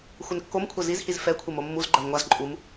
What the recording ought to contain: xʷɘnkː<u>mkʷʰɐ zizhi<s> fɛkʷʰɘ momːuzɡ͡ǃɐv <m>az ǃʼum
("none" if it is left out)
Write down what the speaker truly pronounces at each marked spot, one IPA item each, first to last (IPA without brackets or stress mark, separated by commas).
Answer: o, z, ŋʷ